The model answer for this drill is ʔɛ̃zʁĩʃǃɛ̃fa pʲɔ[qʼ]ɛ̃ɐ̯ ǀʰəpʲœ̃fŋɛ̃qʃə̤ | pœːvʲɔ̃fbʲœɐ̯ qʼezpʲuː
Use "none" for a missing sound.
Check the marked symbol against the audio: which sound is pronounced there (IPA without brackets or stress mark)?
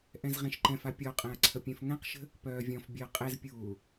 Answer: qʼ